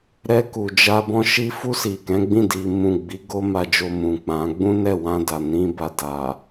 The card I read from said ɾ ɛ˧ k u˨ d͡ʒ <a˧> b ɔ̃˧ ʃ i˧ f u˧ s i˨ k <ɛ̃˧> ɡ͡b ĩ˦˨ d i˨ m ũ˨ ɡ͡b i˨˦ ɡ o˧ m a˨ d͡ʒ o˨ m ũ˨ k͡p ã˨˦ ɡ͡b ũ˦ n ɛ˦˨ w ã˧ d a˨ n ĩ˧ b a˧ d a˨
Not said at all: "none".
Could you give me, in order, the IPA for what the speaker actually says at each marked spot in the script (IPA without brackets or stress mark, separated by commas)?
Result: a˧, ɛ̃˨˦